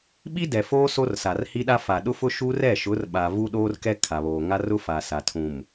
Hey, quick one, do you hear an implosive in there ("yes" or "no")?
yes